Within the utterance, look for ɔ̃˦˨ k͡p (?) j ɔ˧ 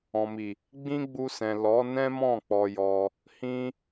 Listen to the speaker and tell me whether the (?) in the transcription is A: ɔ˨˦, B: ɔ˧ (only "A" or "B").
B